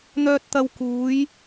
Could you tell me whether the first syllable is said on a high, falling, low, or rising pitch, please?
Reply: high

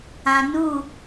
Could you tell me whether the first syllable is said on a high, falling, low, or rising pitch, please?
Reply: low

